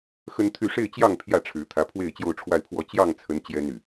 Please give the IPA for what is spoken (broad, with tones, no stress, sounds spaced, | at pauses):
x ə˦ n t̪ʰ y˥˨ ʂ e˥˨ ɪ̯ t͡ɕ j ɑ˥˨ ŋ pʰ j ä˥˨ ʈ͡ʂʰ ɻ̩˨˦ t̪ʰ ä˨˦ pʰ w e˥˨ ɪ̯ t͡ɕ j o˥˨ ʊ̯ ʈ͡ʂʰ w a˥˨ ɪ̯ pʰ w ɔ˥˨ t͡ɕ j ɑ˥˨ ŋ t͡sʰ ə˨˦ n t͡ɕ j ɛ˦ n y˨˩